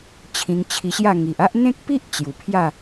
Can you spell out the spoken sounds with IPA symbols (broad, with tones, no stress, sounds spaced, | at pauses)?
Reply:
t͡ɕʰ ĩ˧ ŋ t͡ɕʰ i˧ ɕ j a˥˧ ŋ i˨ ʔ a˦ ʔ n̪ ẽ˦ k̚ p i˦ ʔ t͡ɕ j u˨˩ pʰ j a˥˧